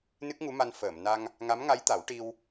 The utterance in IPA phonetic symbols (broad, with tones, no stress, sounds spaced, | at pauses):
n ɨ˦˥ k̚ ŋ u˧˥ m a˧ n f əː˨˩˨ m n a˧ ŋ | ŋ a˧˥ m ŋ a˧˥ j t̪ a˨˩˦ w ʈ i˧ w